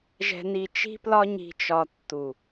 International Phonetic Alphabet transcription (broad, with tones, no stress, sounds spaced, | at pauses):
ʒ ɛ̤˧ n i˧ t͡ʃ i̤˦ p l ɒ˦ ɲ i̤˧ t͡ʃ ɒ˧ tː u˨